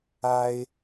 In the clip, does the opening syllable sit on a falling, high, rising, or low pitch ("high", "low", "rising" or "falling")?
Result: high